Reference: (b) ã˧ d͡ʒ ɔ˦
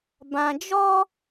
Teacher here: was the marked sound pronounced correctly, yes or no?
yes